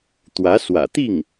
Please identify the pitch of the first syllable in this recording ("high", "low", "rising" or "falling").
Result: rising